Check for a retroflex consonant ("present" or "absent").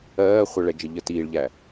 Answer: present